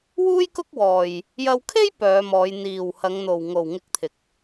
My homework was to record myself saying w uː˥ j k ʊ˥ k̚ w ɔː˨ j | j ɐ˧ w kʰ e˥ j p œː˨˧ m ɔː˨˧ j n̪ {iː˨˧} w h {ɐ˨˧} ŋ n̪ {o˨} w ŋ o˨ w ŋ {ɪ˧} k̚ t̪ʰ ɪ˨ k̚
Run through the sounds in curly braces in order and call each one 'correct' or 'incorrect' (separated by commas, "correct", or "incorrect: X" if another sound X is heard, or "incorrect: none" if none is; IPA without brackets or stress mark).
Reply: incorrect: iː˨, correct, correct, correct